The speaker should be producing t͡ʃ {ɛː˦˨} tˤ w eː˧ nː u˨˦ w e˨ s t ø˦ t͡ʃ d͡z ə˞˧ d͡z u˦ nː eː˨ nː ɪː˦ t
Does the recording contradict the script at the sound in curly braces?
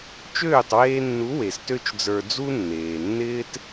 yes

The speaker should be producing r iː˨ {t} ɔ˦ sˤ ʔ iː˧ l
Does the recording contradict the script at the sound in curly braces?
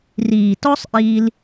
no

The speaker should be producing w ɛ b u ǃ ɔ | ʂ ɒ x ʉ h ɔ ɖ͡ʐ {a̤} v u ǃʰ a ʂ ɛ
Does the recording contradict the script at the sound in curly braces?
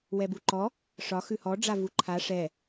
yes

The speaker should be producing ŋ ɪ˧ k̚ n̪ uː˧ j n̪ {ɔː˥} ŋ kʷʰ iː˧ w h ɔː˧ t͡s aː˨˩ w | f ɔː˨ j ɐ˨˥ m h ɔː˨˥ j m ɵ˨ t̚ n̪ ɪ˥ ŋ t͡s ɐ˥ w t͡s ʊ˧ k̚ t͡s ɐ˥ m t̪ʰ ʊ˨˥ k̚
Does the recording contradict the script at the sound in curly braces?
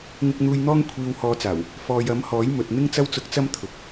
no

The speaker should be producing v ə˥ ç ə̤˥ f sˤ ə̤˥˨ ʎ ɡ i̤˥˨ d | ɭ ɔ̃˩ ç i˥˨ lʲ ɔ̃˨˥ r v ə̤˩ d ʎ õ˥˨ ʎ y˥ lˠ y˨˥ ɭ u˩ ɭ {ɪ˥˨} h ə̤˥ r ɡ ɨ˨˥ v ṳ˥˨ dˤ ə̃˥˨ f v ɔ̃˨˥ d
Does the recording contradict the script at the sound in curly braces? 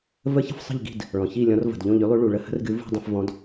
yes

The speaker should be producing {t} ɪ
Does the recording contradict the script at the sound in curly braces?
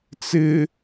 yes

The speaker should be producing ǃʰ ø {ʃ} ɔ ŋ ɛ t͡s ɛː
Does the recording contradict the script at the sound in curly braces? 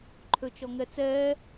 yes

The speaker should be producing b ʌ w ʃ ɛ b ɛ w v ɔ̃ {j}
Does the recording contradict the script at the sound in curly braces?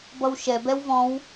yes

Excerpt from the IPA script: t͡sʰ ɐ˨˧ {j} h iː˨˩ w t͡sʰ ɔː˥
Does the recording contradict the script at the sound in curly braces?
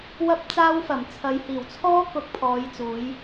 no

